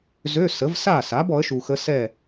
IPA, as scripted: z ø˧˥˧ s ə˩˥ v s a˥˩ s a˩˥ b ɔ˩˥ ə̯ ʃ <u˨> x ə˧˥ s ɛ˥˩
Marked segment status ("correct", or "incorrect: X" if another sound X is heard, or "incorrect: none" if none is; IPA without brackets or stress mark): correct